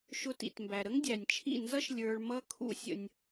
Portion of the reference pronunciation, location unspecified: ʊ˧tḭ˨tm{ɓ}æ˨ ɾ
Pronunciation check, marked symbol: incorrect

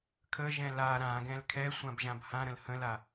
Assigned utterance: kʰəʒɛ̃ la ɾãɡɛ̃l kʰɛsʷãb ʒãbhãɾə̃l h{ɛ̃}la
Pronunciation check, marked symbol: incorrect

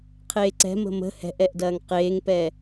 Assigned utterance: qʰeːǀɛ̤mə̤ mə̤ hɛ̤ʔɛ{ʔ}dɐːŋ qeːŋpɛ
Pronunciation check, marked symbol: correct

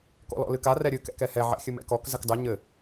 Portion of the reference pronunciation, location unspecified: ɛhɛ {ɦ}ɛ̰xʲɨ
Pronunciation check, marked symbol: incorrect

